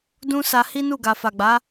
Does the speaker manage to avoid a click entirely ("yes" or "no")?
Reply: yes